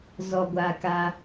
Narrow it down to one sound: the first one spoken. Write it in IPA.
z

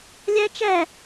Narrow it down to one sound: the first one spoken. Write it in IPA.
lʲ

